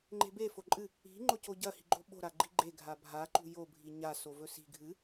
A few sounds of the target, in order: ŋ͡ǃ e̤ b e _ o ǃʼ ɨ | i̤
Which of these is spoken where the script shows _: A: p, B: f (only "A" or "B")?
B